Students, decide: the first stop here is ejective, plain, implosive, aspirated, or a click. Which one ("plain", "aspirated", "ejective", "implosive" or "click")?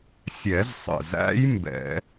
plain